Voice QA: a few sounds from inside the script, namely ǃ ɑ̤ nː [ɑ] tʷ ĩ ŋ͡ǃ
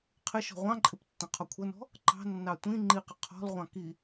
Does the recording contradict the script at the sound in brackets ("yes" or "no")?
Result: no